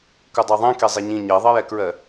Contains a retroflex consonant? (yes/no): no